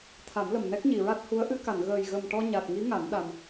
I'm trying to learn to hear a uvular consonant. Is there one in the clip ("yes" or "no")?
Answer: no